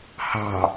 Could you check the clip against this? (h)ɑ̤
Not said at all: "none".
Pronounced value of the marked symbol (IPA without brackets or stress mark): h